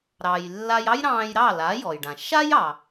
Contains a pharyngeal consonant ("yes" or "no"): no